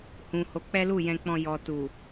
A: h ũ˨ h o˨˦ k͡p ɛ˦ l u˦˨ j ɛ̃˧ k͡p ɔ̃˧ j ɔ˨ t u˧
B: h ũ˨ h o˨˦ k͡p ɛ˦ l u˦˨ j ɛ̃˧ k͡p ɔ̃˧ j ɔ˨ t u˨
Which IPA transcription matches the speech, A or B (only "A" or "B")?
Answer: B